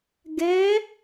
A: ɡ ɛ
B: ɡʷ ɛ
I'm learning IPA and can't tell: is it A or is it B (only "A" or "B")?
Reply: A